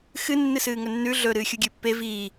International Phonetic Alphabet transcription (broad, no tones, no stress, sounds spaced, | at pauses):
x ɨ nː ɨ s ɨː ŋ ɵ nː ʉ ɮ ɵ ɾ ɨː xʲ u ɡʲ ɨː pː e v iː